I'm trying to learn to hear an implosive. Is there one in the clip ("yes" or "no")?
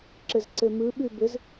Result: yes